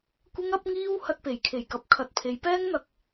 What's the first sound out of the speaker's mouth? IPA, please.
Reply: kʷ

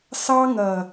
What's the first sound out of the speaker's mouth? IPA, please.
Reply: s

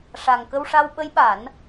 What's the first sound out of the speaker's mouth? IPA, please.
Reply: ʂ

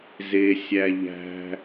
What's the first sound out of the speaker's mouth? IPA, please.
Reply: z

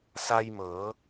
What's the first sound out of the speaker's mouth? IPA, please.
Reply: s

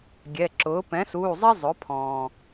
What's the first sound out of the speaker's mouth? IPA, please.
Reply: ɡʲ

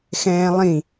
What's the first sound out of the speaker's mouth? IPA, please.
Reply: x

